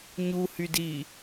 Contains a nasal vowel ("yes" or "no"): no